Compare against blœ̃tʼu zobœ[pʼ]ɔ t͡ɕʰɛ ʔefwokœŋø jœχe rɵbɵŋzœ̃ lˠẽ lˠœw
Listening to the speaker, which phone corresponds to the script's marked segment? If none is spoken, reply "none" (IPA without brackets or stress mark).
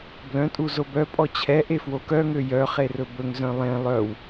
pʼ